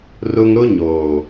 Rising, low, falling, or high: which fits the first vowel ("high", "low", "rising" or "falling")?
high